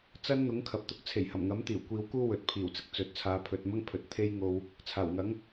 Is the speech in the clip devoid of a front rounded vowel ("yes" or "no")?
yes